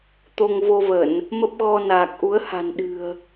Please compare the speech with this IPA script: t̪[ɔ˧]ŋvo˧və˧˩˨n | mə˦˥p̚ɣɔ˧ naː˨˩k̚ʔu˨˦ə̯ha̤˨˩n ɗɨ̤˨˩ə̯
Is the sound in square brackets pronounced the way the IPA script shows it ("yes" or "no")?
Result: no